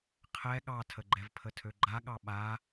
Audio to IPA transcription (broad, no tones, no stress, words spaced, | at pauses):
qʰɛ ɠɑtʰəɡ͡ǃɛvpʰə tʰøɡ͡ǃaɠɑ ɓa